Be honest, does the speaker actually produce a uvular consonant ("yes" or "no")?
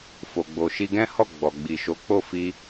no